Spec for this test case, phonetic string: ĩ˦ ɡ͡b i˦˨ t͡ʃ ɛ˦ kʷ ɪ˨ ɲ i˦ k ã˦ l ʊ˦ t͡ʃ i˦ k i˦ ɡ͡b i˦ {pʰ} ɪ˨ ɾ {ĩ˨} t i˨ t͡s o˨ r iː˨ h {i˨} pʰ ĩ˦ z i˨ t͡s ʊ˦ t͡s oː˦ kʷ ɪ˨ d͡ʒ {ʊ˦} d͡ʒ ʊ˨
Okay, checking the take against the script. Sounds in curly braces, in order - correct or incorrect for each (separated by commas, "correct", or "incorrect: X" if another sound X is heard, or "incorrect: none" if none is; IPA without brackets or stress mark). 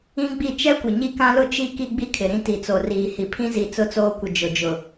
incorrect: kʰ, incorrect: ĩ˦, correct, incorrect: ʊ˨